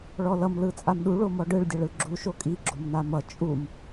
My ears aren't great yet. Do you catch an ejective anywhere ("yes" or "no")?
yes